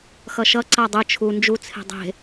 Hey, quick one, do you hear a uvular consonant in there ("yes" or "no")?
no